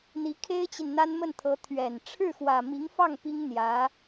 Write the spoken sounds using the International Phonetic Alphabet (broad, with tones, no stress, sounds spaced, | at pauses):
n̪ i˧˥ kʰ e˥ ɪ̯ t͡ɕ i˨ n n̪ a˥ n m ə˥˩ n t̪ʰ ɤ˧˥ t̪ʰ ɥ ɛ˨˩ n ʈ͡ʂʰ ɻ̩˥˩ x w ä˨˩ m i˧˥ ŋ f ɑ˥˩ ŋ p i˥ ŋ n̪ j ä˧˥